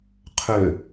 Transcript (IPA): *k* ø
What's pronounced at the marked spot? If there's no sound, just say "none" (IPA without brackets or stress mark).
qʰ